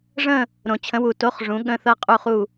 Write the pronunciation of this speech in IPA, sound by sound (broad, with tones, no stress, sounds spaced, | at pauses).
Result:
ʐ ə̃˥˧ | ɾ õ˨˩ t͡ɕʰ ə̃˨˥ w u˨˩ t o˧˥˧ χ ʐ ũ˨˥ ɠ ə̃˧˥˧ θ ɤ˥˧ qʼ u˥˧ χ u˥˧